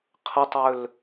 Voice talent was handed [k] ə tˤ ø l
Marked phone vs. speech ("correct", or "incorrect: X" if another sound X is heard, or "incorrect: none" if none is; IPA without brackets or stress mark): incorrect: qʰ